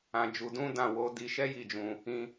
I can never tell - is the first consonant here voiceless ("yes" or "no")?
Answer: no